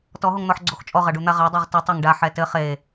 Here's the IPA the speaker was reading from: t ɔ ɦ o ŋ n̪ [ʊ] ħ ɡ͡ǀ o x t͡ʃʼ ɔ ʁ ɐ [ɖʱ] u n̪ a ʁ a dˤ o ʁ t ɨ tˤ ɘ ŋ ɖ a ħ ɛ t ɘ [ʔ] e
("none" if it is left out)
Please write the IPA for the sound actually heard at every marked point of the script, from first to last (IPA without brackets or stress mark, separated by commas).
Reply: ɔ, ɖ, χ